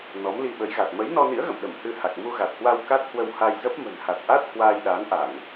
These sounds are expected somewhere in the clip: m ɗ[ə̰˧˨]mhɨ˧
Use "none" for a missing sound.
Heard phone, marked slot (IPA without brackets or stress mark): ə˧˩